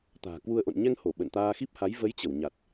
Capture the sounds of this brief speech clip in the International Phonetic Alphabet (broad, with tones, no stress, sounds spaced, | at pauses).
t̪ a̤ː˨˩ k w u˧ ə̯ ʔ o̰˧˨ n ɲ ɛ˧ ŋ h o˧˩ ɓ ə̰˧˨ n t̪ aː˧ x i˦˥ p̚ h a˨˦ j v ə˨˦ j t͡ɕ ə˧˩ w ɲ a˨˩ t̚